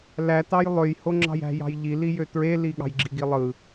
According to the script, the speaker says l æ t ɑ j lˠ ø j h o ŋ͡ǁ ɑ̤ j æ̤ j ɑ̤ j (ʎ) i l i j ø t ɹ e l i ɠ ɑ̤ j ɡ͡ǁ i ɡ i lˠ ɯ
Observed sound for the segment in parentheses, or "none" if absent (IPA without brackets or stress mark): ʎ